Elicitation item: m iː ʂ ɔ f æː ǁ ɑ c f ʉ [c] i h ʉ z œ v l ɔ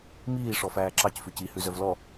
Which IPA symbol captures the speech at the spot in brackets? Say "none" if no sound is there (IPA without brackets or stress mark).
c